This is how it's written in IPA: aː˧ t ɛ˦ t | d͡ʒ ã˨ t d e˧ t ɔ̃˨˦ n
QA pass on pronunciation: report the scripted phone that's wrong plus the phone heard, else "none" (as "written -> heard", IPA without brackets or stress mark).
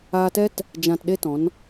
d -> ɗ